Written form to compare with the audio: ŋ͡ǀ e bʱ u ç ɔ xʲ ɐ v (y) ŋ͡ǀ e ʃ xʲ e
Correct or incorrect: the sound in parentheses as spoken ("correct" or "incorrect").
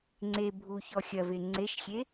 incorrect